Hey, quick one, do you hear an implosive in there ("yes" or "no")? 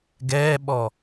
yes